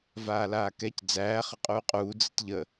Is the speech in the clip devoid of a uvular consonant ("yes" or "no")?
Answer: no